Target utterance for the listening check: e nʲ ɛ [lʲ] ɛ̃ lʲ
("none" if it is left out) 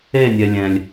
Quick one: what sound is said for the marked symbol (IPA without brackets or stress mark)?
lʲ